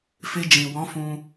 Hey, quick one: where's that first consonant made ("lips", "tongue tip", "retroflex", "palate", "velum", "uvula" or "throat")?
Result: lips